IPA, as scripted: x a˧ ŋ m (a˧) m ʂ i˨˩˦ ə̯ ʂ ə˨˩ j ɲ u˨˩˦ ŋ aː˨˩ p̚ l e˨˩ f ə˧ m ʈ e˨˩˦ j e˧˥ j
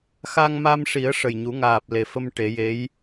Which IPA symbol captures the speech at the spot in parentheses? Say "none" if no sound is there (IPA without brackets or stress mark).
a˧